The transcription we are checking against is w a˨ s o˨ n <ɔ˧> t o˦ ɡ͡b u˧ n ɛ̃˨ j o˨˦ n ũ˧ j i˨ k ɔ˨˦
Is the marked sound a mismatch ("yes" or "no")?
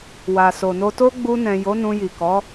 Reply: yes